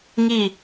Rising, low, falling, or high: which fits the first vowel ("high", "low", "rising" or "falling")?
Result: falling